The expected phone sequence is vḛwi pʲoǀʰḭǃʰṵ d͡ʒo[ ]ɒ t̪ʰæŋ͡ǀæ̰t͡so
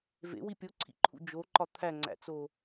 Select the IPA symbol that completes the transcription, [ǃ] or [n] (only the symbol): ǃ